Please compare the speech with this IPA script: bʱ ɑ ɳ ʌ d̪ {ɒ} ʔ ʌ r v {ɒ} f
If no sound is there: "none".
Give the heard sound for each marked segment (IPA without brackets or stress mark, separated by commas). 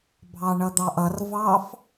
ɑ, ɑ